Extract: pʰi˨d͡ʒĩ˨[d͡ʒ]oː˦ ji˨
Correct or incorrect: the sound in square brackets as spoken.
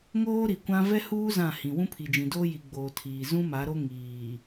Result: incorrect: d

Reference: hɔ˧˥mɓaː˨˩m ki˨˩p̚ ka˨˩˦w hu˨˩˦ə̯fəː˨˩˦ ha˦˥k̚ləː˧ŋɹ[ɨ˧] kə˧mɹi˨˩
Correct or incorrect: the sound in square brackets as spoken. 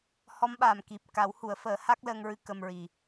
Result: correct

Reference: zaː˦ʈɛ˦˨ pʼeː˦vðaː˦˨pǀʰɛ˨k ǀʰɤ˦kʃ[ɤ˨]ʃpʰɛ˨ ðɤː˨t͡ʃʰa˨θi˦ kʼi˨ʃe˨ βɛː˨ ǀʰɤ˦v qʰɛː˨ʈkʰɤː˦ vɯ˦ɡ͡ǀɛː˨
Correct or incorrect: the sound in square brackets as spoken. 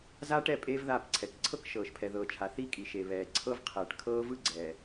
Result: incorrect: ɤː˨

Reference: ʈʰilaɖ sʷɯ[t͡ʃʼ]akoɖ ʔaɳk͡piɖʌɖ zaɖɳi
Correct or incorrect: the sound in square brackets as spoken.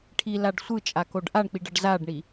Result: correct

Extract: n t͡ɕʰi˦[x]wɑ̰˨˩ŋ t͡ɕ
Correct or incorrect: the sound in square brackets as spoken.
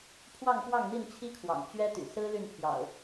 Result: incorrect: kʰ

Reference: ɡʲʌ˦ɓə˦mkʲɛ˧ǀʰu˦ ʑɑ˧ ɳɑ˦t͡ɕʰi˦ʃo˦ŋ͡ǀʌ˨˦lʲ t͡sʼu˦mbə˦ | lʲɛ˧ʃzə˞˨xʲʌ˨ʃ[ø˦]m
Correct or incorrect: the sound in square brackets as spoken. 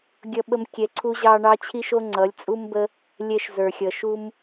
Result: incorrect: u˦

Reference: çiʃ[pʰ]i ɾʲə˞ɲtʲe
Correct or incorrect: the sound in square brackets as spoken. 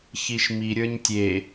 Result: incorrect: m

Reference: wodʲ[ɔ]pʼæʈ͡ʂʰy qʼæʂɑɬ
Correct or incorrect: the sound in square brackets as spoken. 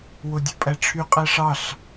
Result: incorrect: o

